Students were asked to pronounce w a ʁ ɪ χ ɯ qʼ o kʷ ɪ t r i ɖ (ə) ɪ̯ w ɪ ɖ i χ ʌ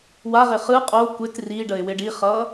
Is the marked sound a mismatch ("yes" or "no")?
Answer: no